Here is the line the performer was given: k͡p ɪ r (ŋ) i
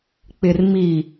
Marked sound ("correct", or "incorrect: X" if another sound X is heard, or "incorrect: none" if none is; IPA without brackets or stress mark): incorrect: m